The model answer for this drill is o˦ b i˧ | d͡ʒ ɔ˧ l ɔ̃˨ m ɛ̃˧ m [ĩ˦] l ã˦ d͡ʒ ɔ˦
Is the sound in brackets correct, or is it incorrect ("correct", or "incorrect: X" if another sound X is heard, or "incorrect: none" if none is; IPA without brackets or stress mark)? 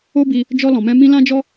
correct